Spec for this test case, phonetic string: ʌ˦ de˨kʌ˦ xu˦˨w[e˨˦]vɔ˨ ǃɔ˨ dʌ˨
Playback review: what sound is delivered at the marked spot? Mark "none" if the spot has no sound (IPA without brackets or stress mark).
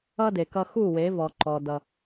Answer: e˨˦